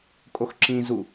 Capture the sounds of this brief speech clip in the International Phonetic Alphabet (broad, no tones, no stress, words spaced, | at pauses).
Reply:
kʼoxǁĩzu